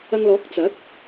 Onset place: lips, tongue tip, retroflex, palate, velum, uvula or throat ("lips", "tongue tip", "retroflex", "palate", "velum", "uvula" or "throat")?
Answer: velum